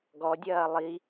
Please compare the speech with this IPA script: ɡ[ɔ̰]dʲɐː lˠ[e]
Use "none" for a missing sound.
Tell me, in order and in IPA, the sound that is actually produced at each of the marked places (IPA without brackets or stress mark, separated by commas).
ɔ, i